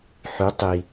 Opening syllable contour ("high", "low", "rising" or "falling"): rising